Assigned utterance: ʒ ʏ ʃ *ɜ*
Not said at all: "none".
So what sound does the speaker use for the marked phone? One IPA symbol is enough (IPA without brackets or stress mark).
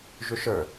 ə˞